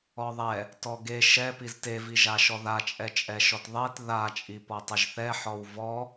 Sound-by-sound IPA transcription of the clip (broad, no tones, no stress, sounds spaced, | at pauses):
ɔ ðˤ ɛ | t ɔ ɡ e ʃ ɛ p i z t e v i ʒ a ʃ ɔ ð a t͡ʃʼ ɛ t͡ʃʼ ɛ ʃ ɔ t ðˤ e t ð a t͡ʃʼ i p ɔ tˤ ɪ ʒ θ ɛ ħ ɔ w v ɔ